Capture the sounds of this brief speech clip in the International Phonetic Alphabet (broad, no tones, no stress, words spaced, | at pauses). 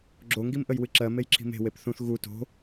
ɡ͡ǁoŋɡimʔəj wɨǁɜ mejǁʰi̤me̤ wepθũθ ɣu to̤